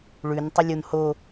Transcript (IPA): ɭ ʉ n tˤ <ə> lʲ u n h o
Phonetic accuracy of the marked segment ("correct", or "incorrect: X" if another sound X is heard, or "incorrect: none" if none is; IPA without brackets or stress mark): correct